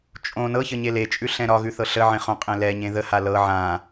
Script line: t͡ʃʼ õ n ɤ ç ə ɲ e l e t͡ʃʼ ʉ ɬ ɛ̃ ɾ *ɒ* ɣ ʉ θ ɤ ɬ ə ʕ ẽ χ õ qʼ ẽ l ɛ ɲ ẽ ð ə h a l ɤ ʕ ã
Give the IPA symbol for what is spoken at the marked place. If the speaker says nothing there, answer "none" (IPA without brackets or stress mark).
ɒ